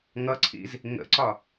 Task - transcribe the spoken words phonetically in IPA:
ŋʌǀʰḭz | ŋə̰ǀɒ

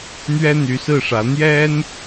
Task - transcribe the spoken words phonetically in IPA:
n̪ɥɛ˥n̪y˧˥sɹ̩˥˩ʂä˧˥ n̪jɛ˥n

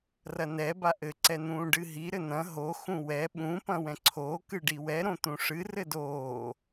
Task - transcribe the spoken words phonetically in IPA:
rɐnɛ baʔɘ ǀɛn̪ũːɖɨɦi ɾɘn̪ɐ̃ ɦo xũwɛ ɓũ pɐ̃wɛ̃ǀʰoː kɨɖiwɛ ɾõt̪ũʂɨ rɘdoː

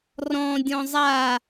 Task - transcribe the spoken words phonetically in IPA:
rɔ̃dʲɔ̃ zˤa

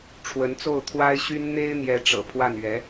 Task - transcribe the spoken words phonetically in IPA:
ʈ͡ʂʰwə˧˥nt͡so˥˩ʊ̯ t̪ʰwa˥ɪ̯ɕy˥n n̪e˥ɪ̯n̪jɛ˧˥ ʈ͡ʂɤ̰˨˩pʰwa˥˩nɥɛ˧˥

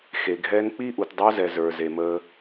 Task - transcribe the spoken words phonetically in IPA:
xe˨ɡʱɛ˦n k͡pi˦ʔu˨tdˤo˦zɛ˨ zə˞˨ze˨ mə˦

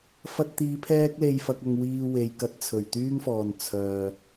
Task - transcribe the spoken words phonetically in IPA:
fɐ˧t̚t̪iː˨˧ pʰɛː˥k̚le˧jfɐ˧k̚ɐ˧ŋ wiː˧we˨jkɐ˧t̚ t͡sʰɵ˨˩ɥt̪yː˥ŋfɔː˨n t͡sʰœː˨

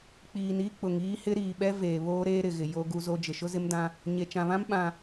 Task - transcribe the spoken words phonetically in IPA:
k͡piː˨n i˦ k͡pʊ˨ŋiː˦hɪ˦ ɾiː˨ɓɛ˦ veː˨βoː˦ ɾeː˦ɾɪ˨ɣɪ˨ jo˦ɡu˦zo˦ d͡ʒɪ˨ʃʊ˦zɪ˦mdã˦ | ɲe˨t͡ʃã˨βã˦m ɓã˨

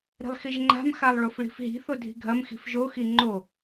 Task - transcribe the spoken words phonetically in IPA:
ɾi̤lˠxiʒŋ͡ǃa̤m xalˠɭofɭi̤fɦi̤ θodʱi̤ɡʱɐm xi̤fʒo xiŋ͡ǃo

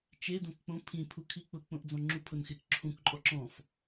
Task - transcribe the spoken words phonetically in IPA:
t͡ʃe dõkk͡põ pʰĩ pʰukʰik͡pʊ k͡põʔd͡zɔ̃ŋ͡ǁu pʰʊnxɪk ǁʰũk ǃʼɔǁɔ̃f

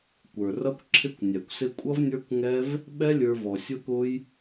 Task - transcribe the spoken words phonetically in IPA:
kʷə˞˨rʌ˦kʷ ǁʰɪ˦kʷnʲæ˨kʷsɪ˦ kʷʼʌ˦vnʲə˞˦kʷŋɛ˦v | ɓɛ˦lʲə˞˧ vɔ˨sʲʊ˦kʊ˦j

